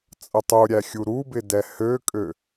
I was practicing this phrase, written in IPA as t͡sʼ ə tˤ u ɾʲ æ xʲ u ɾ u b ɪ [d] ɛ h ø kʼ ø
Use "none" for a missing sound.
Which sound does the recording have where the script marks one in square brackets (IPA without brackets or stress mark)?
d